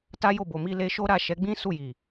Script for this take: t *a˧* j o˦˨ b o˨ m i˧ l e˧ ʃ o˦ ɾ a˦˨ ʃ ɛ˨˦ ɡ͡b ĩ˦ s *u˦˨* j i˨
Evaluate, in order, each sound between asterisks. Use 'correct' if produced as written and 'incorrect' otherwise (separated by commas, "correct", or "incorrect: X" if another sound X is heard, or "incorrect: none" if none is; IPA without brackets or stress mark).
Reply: incorrect: a˦, correct